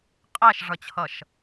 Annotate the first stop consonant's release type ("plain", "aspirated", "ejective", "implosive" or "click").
ejective